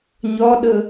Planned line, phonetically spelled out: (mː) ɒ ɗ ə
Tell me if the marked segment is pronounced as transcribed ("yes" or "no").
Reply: no